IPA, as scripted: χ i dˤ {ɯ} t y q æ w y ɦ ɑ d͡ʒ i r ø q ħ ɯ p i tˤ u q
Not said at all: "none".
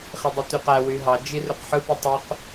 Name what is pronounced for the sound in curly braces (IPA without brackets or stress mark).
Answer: u